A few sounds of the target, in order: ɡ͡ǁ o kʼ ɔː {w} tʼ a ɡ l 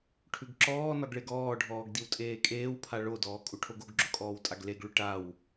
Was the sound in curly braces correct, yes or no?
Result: yes